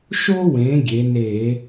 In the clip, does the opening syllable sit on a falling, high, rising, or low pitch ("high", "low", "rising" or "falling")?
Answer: high